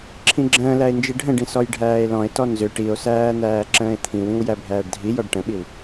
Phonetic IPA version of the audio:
ǁʰ ĩ ɡ͡ǁ ə̃ː l æ e̯ n d͡ʒ i ɖʱ ə̃ ɖ ĩ s ɔ j ɖʱ æː e̯ l ɔ̃ e̯ t ɔ n z ʏ ʈ i o̯ s æː n̪ æː ǁ ə̃ː e̯ t̪ʰ ĩ w ĩ w j æ bʱ æː ɖ dʱ i j ɔ ɖ ʈ ə̃ ɓ i w

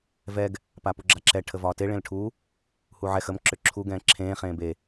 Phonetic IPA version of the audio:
v ɛ ɡ | p a p u ɡ͡ǁ a ǁ ɛ ʈʰ ə v ɒː t e ɭ ẽ l ʈʰ u | h u ʕ ɛ x ə m ǁ ʏ ǁʰ u ɡ ɛ̃ː ǁʰ ẽː χ ẽː b e

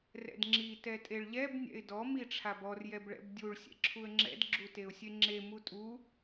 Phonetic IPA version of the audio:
r ɛ̰ d ŋ͡ǁ i t ɛ tʼ e ɭ ʎ ɛ b nʲ ɛ̰ ɪ̯ d ɔ m i ʈ͡ʂʰ a b ɔ r j ɛ b ɭ ɛ̰ b dʲ u ɭ sʲ ɛ̰ ǁʰ u ə̯ ŋ͡ǁ ɛ̰ d ɡ͡ǁ u t e ʊ̯ sʲ e ŋ͡ǁ e m u tʼ u

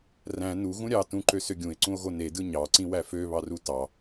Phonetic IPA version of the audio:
r æ̃ n u ɣ ũ ɾʲ ɑ t ũ ǃ ø s ø ɡʲ ũ e̯ ǀ ũ o̯ ɣ o n e d ɯ ɲ ɑ ǀ ĩ w æ f ø β ɑ r u t ɑ

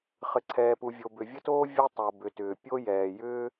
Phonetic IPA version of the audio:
χ ɘ˩ ǀʰ ɛː˩ p u˩ vʲ o˩ b ʏ˩ vʲ ə˥ t oː˥ vʲ ɛ˥ tˤ o˩ b ʏ˩ t ʏː˩ pʲ o˥ j ɛː˩ j ʏː˥

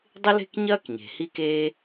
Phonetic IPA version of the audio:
dˤ ɪ˥ l e̤˥ k ɲ ɐː˥ k ɲ e̤˩ h i˥ k eː˥

